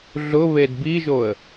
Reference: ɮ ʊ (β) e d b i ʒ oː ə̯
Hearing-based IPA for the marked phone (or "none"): β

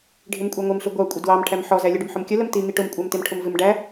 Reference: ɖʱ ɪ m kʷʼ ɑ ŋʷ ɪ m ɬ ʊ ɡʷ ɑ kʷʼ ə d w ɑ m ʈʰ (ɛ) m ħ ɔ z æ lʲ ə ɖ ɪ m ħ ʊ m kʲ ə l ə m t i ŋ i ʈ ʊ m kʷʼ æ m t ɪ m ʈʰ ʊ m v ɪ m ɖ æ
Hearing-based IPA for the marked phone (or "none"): æ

